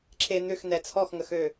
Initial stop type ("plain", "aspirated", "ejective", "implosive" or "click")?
click